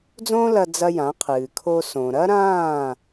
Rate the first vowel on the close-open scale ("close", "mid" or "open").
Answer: mid